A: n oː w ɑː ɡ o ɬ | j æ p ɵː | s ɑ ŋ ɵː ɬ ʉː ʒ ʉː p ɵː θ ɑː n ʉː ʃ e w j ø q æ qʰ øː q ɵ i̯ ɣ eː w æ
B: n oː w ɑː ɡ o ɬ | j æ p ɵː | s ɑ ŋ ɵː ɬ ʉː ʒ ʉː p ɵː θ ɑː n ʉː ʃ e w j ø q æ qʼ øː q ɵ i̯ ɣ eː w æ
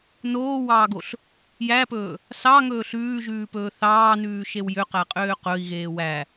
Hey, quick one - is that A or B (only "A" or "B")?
B